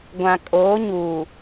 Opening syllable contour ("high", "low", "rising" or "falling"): low